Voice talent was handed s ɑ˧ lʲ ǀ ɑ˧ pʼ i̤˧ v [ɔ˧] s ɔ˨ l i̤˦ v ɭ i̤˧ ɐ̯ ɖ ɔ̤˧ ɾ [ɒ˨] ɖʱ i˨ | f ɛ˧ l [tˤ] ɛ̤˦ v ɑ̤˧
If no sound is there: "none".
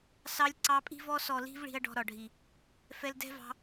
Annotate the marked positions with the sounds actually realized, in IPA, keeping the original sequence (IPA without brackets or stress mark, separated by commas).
ɔ˧, ɒ˨, d